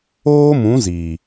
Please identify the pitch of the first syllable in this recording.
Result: high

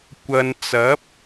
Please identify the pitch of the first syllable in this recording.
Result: low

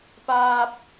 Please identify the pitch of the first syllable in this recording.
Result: high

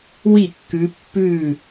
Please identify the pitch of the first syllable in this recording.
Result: falling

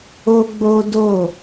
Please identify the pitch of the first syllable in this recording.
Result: high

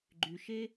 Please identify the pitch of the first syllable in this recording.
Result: low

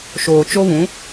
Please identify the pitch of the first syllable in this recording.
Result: low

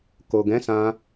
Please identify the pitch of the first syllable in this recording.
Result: low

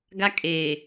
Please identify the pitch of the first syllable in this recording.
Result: high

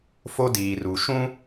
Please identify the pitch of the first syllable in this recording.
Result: high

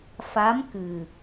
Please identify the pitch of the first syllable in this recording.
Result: rising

